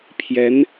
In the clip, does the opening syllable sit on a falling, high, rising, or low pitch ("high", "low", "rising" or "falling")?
rising